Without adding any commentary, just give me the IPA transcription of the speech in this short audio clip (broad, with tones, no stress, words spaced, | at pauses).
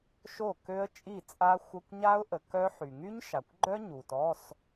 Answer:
ʃo˥˩kø˦˥ə̯ t͡ʃʼi˥˩t͡sʼa˦˥ xʷə˧˥˧kʷɲa˦˥ʊ̯ʔə˨ kœ˦˥ħy˨ ŋy˦˥ɲʃa˨kʷɡ͡ǃœ˦˥ ɲu˨tɔ˧˥˧s